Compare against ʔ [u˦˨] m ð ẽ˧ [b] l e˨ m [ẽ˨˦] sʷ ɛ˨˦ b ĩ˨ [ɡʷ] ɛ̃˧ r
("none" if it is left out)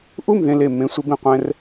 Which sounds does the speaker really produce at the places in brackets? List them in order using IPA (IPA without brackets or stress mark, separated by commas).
u˦˨, none, ẽ˨˦, qʷ